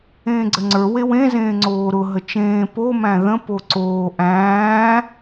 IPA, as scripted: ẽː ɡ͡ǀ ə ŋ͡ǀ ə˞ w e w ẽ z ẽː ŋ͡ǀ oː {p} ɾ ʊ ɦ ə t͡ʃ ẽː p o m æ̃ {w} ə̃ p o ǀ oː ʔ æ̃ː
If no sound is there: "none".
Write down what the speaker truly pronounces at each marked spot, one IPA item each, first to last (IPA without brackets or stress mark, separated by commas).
none, ð